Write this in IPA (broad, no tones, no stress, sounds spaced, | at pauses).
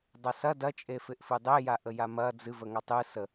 dˤ ɐ s ɐ d ɐ t͡ʃʼ e f ɪ ʔ f ɨ dˤ e j a ʔ ə j a m ɐ d͡z ɨ v ə ŋ a tˤ ɨ s ə